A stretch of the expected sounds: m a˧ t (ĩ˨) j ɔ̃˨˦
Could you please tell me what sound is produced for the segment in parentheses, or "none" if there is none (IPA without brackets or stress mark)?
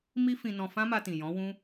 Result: ĩ˨